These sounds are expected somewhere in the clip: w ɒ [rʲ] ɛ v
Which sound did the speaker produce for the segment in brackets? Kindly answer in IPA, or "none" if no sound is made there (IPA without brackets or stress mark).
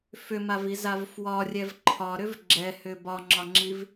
rʲ